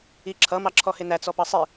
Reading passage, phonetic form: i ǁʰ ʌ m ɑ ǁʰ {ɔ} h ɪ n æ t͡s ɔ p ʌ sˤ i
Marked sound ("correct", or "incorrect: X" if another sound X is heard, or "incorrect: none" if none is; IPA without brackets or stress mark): correct